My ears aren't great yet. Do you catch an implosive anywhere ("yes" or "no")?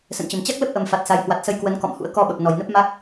yes